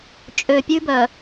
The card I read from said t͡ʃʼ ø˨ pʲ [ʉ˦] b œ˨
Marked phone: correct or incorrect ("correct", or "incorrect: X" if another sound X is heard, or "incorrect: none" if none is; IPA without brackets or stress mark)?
correct